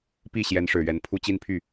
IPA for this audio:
pi˥˩ ɕjɛ˧˥nʂɻ̩˨˩ɥɛ˧˥npʰu˥˧ t͡ɕi˥˧npʰy˥˩

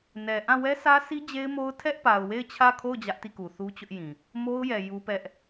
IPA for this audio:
nɛ˨ʔã˦˨ wɛ˦sʰä˦si˦ d͡ʑe˦ɪ̯mo˦ʊ̯ tʰɛ˦ʔpa˨ʊ̯we˦˨ɪ̯ t͡ɕʰä˦˨kʰo˦˨ʊ̯ d͡ʑä˦ʔti˦˨ku˨θu˦ t͡ɕʊ˦ʔjĩ˨ | mo˦ʊ̯jɛ˨ ju˦pɛ˦ʔ

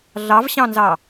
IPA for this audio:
ɮɑvɕɑ̃nzɑ

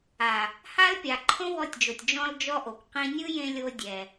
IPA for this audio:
a˨ | ha˦lpʲa˨ ǃʰõ˦wɔ˧tʲd͡ʒo˨tʲ d͡ʒɔ̃˧ld͡ʒɔ˧ ʔo˨kʷqĩ˦ nʲɯ˦jẽ˧ lʲo˦ dʲɛ˧

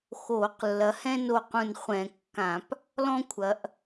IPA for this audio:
xoː˧˩˧qlːɐ˨˦hɛ̃˥ no˥˨qũ˥˨n χʷɛ̃˧˩˧kːã˧˩˧p | lɔ̃˥kʷʰɐ˨˦ʔ

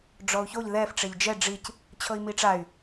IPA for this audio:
ɖ͡ʐɔu̯çoʎ ðɛf ʈ͡ʂeʎd͡ʒɛ ɖ͡ʐic | t͡ɕʰɤi̯miʈ͡ʂay̯

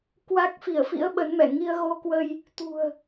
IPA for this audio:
kwa˦˥k̚fi˧˩ə̯fḭ˧˥ə̯ ɓə˨˦nmɛ˧˩ ŋi˧ə̯ɣo˧kwə˧j | t̪ṳ˨˩ə̯

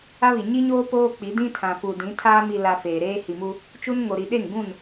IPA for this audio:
a˦βi˨ ɲi˦ɲoː˦ poː˦k͡pi˨˦dĩ˦ tʰã˨fu˨dĩ˨˦tʰaː˦ mi˨la˨ feː˨ɾeː˦ hi˨mu˦ | t͡ʃu˦n ŋo˨ɾi˨ ɗe˦˨ŋɡũ˦˨n

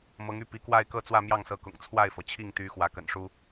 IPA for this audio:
mɤ˧˥ŋy˥˩ pi˧˥kwa˥˧ɪ̯kɤ˥˧ t͡swä˥˧mjɑ˥˩ŋsɤ˧˥kʊ̰˨˩ŋ t͡sʰwa˥˩ɪ̯fɤ˩t͡ɕʰi˥˩ŋt̪y˧˥ xwä˧˥kə̰˨˩nʂu˥

